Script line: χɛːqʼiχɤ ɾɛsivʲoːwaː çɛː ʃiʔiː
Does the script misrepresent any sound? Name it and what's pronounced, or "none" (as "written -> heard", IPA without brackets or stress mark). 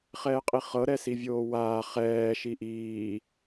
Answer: ç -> χ